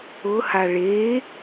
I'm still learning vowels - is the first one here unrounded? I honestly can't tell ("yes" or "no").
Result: no